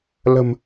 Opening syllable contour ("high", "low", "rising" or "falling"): low